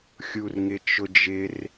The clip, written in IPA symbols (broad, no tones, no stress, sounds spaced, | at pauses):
xʲ u r ŋ ɪ t͡ʃ ʊ d͡ʒ ɪ r